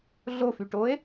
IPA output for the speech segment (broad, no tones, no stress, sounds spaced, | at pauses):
ɮ o f y ʈ o e̯